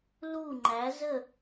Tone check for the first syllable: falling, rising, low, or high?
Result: falling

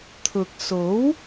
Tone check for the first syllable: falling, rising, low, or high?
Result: low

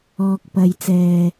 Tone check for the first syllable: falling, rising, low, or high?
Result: low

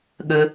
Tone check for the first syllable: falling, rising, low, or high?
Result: low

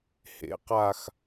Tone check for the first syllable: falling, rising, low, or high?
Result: rising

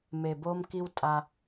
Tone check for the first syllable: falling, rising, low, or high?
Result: low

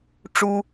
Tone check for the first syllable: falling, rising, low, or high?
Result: high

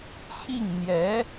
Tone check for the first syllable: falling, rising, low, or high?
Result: falling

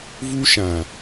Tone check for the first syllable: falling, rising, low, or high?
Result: high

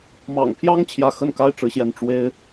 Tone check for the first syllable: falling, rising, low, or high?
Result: low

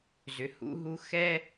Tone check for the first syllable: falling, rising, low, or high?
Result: low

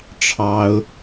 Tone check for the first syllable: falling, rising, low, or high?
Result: high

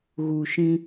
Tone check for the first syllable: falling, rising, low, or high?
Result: low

